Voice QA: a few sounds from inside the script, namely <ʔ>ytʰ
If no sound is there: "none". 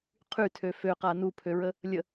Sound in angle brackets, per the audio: qʰ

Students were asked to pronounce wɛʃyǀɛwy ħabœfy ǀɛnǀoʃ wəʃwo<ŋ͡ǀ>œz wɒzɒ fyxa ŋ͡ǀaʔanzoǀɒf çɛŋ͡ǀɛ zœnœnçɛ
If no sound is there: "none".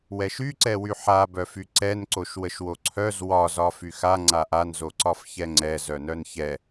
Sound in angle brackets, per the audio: ǀʰ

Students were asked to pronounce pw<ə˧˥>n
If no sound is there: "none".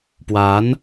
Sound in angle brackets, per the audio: a˧˥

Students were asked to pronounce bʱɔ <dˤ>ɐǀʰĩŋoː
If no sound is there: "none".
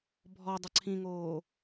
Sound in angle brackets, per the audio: dˤ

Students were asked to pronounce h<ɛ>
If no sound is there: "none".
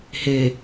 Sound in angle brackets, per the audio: e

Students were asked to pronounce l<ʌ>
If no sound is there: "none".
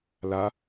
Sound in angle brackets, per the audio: a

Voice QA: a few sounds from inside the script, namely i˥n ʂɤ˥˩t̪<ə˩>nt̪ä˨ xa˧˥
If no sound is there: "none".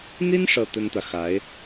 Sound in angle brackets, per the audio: ə˥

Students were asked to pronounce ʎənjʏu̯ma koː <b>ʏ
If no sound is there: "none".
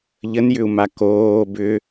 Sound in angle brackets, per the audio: b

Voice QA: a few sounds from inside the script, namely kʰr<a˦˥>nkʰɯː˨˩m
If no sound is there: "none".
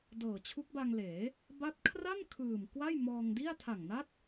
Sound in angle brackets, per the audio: a˥˩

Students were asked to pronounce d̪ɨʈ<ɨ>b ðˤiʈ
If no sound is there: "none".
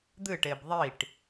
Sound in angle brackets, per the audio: e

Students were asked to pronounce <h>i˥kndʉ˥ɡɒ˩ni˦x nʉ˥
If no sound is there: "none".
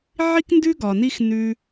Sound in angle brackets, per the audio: ʕ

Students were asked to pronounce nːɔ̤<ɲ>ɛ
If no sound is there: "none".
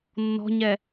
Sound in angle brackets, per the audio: ɲ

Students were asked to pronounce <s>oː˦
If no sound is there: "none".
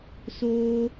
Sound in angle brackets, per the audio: s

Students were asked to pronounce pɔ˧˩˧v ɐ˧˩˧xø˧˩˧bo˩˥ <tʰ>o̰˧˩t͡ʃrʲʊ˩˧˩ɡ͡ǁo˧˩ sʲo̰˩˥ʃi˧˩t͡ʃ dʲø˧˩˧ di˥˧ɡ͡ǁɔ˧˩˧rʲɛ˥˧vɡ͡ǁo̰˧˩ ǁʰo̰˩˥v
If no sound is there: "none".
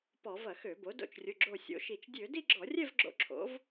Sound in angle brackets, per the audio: d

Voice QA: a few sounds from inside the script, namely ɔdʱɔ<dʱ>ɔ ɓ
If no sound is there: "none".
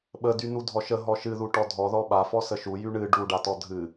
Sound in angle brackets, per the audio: ð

